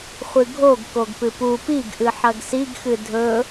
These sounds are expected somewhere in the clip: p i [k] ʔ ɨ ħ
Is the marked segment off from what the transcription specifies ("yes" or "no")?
yes